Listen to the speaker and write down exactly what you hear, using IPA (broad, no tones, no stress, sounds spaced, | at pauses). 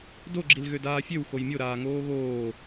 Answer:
d o ɡ͡ǁ i l ɣ ø d aː fʲ ø w x o j mʲ o ɾ aː ŋ oː ɣ oː